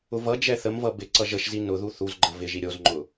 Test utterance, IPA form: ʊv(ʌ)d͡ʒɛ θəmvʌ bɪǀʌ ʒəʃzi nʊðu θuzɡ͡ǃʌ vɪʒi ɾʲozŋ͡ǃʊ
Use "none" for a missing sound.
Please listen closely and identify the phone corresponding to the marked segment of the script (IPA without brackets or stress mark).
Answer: ʌ